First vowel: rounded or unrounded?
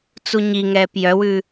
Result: rounded